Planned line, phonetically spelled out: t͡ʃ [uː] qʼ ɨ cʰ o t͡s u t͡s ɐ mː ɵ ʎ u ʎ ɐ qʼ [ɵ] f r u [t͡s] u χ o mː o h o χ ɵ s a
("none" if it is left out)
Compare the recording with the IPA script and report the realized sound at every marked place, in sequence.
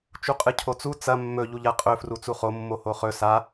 u, ɵ, t͡s

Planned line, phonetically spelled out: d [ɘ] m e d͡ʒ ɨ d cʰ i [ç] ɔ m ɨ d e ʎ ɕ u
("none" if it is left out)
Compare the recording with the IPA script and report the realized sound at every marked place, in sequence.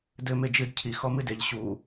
ɘ, x

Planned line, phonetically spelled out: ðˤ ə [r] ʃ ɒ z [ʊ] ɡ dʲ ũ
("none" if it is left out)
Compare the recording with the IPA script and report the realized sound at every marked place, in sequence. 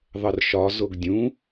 r, ʊ

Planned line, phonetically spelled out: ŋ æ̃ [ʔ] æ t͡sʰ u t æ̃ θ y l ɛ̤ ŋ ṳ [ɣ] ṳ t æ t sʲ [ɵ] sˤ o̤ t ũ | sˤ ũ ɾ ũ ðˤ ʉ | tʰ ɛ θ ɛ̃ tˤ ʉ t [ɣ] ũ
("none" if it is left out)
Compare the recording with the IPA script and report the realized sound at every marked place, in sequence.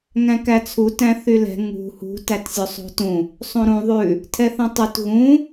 k, h, ɵ, ɣ

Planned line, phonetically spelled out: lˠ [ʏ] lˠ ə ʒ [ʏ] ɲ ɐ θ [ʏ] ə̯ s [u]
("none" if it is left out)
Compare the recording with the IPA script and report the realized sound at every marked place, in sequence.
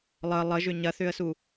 ə, ʏ, ʏ, u

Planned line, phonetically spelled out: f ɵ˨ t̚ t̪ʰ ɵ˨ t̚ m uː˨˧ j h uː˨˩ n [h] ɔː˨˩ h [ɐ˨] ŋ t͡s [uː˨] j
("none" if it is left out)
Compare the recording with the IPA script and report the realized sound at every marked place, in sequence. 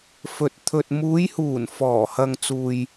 f, ɐ˨, uː˨

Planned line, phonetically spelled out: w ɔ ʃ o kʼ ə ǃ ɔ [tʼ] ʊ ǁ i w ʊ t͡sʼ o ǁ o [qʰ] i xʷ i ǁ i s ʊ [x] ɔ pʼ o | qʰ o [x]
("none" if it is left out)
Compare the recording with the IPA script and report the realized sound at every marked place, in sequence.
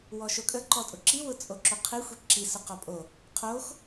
tʼ, qʰ, q, x

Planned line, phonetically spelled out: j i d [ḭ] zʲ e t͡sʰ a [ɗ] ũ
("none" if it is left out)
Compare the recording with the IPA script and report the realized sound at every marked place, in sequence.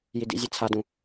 ḭ, d

